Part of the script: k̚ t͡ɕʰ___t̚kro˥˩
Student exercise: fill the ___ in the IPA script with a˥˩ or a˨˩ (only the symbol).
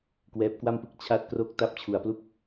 a˥˩